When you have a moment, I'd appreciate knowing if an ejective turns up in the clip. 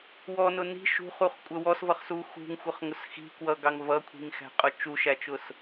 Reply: yes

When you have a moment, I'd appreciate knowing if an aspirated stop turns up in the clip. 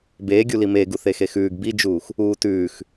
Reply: no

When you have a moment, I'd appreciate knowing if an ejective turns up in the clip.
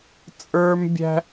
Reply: yes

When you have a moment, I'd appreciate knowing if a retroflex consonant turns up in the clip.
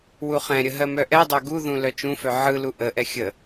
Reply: no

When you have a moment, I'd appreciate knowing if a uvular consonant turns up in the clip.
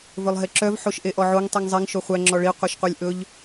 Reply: yes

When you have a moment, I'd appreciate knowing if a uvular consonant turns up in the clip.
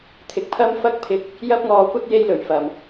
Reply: no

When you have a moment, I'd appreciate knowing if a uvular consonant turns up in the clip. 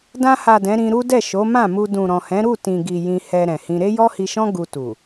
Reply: no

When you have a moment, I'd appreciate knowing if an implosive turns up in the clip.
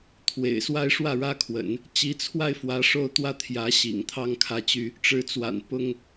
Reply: no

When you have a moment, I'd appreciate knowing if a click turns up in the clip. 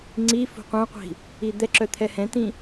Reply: yes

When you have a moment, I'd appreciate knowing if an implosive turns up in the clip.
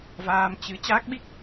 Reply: yes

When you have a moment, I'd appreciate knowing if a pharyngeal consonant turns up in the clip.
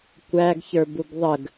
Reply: no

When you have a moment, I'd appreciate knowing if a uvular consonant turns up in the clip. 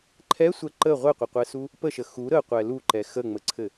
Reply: yes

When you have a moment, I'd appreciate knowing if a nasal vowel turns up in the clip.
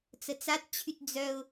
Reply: no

